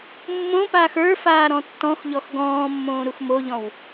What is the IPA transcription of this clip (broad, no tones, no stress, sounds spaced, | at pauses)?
mː õ p aː x ə˞ f aː ɾ ɔ̃ tː ɔ̃ x ʎ ɔ x ɡ ɔ̃ː mː õː ɾ u x m o ʎ ɔ̃ w